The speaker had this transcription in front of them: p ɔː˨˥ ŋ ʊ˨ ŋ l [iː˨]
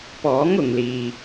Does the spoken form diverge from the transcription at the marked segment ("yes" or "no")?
no